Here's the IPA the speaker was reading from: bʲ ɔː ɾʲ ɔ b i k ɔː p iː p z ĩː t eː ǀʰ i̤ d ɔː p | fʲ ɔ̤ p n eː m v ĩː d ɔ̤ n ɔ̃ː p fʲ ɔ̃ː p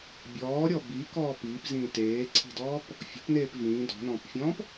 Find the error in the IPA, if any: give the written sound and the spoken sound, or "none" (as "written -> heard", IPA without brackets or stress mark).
m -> p